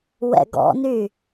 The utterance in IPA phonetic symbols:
w ɛ̰ ɡ ɔ̰ n y

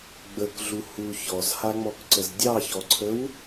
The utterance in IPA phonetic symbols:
ɡ͡b ə k ɮ u h u ç ɔ z h a ŋ͡m ɔ k ǀ ə z dʲ ɑ ç ɔ ǀʰ ə w

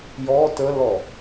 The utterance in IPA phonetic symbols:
j ɔ t ə l ɔ

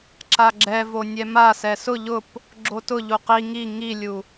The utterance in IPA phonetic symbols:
ǁ a ɡ͡ǁ ɛ v o nʲ ɛ m a s ɛ s ʊ ʎ ʊ p | ɡ͡ǁ o t ʊ ʎ u q i ŋ i ŋ i lʲ u

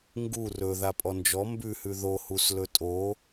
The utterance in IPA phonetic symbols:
ŋ ɡ u r ɵ ð a pʼ ɔ n d͡ʒ ɔ m b ʉ h ʉ ð o h u s l ɵ tʼ o

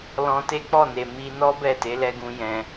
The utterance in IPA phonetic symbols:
l ɔ̃˧ t e˦ k͡p ɔ˦˨ n e˨ m i˧ n ɔ˦ b ɛ˦˨ t e˨˦ l ɛ˧ ɡ ũ˧ j ɛ̃˧

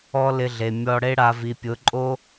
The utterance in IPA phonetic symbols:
ɔ˧ l ɪ˧ ɮ e˨ mʲ ɔ˧ ɽ e˧ ɽ a˨ v i˨ pʲ ʊ˨˦ ǃʼ o˦

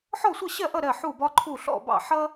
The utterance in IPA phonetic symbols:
ħ ɔ˥˨ sʷ ʌ˥˨ ɕ ɜ˥˨ ʔ ʌ˥˨ ɾ ɜ˥˨ ħ u˥˨ b ɒ˥ ǃʰ u˥˨ ɬ ɔ̰˥˨ b ɑ̰˥˨ ħ ʌ˥

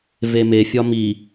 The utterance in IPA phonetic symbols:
v e m e fʲ ɒ m i

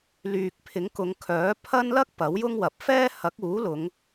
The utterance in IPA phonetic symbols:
l yː˨ k̚ pʰ ɪ˨˥ ŋ k ʊ˨˧ ŋ kʰ œː˨˥ pʰ ɐ˥ n l ɐ˥ k̚ p ɐ˨˥ w j ʊ˥ ŋ w ɐ˨˥ p̚ f ɛː˥ h ɐ˨˥ k̚ uː˨˥ l ʊ˨˧ ŋ

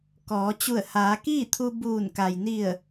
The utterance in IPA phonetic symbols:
k ɔː˩˧ t͡ɕ u˧˩ ə̯ h aː˩˧ k iː˥˨ t̪ʰ u˧ b uː˧˩ n k a˩ j n i˧˩ ə̯

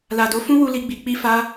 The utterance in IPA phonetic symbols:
l a˨ d o˨˦ f ũ˦ w u˧ l i˦ ɡ͡b i˧ k͡p i˦ f a˦

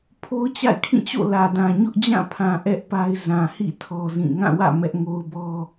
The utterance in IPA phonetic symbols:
pʰ o˦ ʊ̯ t͡ɕ a̰˦˨ ɪ̯ kʰ ĩ˦˨ t͡ɕ o̰˦˨ l ä˨ d ã˨ ɲ ʊ˦ ʔ d͡ʑ ã˦˨ pʰ ã˨ ʔ ɛ˦ ʔ p a˦ ɪ̯ z ã˨ h ḭ˦˨ tʰ ɔ˦ z ĩ˦˨ ŋ ã˦˨ w ä̰˦˨ m ɛ˦ ʔ ŋ o˦ ʊ̯ b ɔ˦

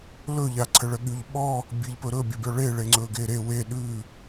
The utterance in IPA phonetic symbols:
l ɵ ʎ a ǀʰ ə ɭ ə ɠ y ʎ ɓ ɔ | bʲ e ʎ p ɵ ɾ ɵ bʲ ə bʲ ɔ ɭ e ɭ e ŋ͡ǀ ɵ ɡ e ɾ e w e ɗ ʉ

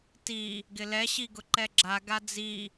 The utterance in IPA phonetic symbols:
t i | ɡ ɪ l ɛ ɕ i ɡ ʊ ǃ ɛ ɡ͡ǁ a ɡ a d͡z i

